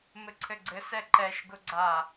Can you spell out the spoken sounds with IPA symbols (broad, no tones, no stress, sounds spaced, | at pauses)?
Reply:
m ɘ ǀʰ ɘ ɡ͡ǀ ɘ s ɛ ǃ ɛ ʃ ɡ ʊ ɡ͡ǀ a